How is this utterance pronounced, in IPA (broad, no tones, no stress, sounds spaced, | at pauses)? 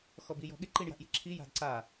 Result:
x ɔ b i j ɔ̤ ɠ ɪ ǃ i ɳ j a̤ ʔ j i̤ ǁʰ i j a̤ d ǀ a